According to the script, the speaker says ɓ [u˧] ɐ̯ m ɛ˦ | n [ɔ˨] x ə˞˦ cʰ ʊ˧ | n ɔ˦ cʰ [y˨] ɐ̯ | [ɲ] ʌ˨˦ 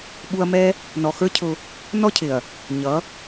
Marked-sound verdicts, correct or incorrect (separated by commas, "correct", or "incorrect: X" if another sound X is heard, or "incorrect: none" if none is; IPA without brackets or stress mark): correct, correct, incorrect: ɪ˨, correct